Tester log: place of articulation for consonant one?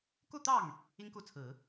velar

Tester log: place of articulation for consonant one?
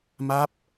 labial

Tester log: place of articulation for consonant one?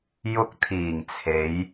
palatal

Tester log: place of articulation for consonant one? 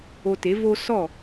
alveolar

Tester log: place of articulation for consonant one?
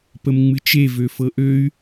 labial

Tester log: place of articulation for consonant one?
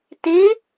alveolar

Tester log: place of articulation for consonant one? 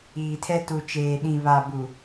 alveolar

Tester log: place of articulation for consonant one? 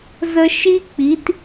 alveolar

